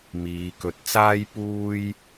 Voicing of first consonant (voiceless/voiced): voiced